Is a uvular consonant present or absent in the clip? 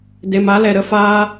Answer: absent